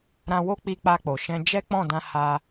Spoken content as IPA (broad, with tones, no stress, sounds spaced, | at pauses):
ɾ ã˧ w o˦ k͡p i˧ k͡p a˧ k͡p o˨ ʃ ɛ̃˧ d͡ʒ ɛ˦ k͡p ɔ̃˦˨ d ã˧ h a˧